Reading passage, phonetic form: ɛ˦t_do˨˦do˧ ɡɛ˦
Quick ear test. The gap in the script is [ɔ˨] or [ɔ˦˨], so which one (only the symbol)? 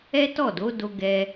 ɔ˦˨